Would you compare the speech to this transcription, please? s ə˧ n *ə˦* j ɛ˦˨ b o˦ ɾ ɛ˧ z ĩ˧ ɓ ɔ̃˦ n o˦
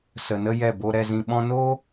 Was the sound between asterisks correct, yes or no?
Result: yes